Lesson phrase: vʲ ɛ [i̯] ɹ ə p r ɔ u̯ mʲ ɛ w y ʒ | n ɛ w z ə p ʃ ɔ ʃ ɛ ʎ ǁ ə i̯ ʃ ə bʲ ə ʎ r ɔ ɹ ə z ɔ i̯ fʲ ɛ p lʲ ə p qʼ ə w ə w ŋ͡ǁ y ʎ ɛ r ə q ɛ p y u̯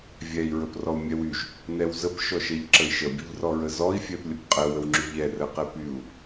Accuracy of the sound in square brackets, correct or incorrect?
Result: correct